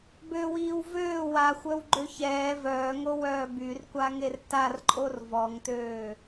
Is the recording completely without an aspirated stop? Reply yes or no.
yes